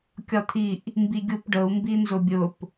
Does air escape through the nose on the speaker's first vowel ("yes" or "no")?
no